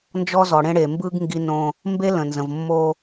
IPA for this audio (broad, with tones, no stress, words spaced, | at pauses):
nd͡ʒɔ˦zɔ˨ɽẽ˦ ɽe˨mbɯ˦ɡ ŋɡi˦ nõ˦ | mbe˦lə̃˨nzə̃˨v mːo˦